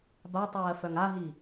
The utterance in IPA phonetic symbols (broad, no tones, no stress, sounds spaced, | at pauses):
b a tˤ ɜː f œ ŋ a ɦ i